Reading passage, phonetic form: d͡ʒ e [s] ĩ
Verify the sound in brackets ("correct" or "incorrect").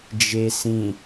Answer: correct